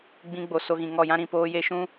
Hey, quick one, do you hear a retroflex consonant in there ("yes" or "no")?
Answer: no